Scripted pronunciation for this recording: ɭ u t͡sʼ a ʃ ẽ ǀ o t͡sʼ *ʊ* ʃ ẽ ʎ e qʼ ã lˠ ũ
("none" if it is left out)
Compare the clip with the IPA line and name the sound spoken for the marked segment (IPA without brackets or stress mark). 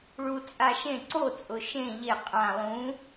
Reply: ʊ